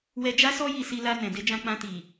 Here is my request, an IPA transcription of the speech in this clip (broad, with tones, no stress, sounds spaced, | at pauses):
w ɛ˧ d͡ʒ a˦ s ɔ˦ j i˧ s i˧ l a˧ n ɛ̃˨ d e˧ d͡ʒ ã˧ k͡p ã˧ t i˨